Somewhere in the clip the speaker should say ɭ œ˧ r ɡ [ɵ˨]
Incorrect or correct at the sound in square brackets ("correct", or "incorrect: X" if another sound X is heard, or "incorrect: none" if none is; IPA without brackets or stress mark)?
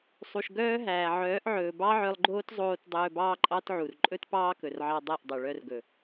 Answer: correct